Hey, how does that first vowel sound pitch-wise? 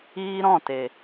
high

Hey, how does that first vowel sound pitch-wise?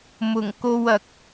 low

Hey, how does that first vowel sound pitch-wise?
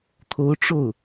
rising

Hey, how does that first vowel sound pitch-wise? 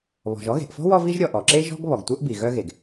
low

